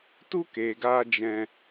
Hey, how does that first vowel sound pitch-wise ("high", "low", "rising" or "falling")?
high